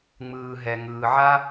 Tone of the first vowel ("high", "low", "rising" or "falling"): low